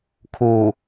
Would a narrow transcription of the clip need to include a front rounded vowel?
no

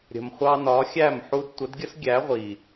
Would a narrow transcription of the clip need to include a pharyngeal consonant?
yes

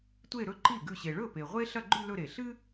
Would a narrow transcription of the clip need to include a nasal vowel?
no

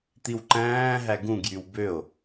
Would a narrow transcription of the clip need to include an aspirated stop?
no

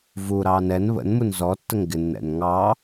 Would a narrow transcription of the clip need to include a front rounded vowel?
no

